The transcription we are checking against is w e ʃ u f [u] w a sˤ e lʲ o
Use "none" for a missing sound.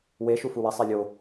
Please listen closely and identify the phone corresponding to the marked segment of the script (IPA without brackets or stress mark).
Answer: u